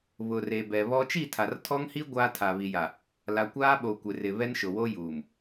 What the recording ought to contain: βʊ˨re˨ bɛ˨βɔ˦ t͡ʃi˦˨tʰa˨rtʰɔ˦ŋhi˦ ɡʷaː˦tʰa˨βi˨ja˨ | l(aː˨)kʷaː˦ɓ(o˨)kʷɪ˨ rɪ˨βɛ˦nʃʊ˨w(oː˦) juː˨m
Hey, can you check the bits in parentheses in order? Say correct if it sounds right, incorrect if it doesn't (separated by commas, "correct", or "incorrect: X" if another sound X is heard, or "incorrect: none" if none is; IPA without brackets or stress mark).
incorrect: a˨, correct, incorrect: o˦